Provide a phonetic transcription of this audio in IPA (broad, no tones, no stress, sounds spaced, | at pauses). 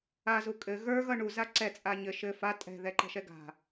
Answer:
a z u kʼ ɘ ɣ ə˞ ɣ ʌ ɳ u z a ǀ ɛ t͡sʼ a ɲ ɘ ʃ ɘ f a tʼ ɛ̤ ð ɛ ǃ ɛ̤ ʃ ɛ ɡ a̤